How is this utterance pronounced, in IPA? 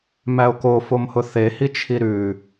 mæo̯ko fomhʊθehi t͡ʃʰiɾʉ

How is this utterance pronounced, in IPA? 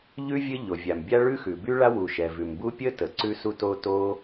ʎʉ˥ vʲɘ˥ʎo˩ vʲa˩m bʲa˥ɭʉ˥ xʉ˩by˥ɭa˥ wu˩ʃɛ˩ vʉ˩mbu˥ pʲə˥tə˩ ǀʉ˥su˥to˥to˥

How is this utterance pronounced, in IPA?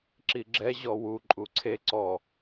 ǁiɡ͡ǁɛ ʑɔwu ǃʼuǀʰe ǀɔ

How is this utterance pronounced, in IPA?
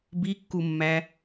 bikːumːæ

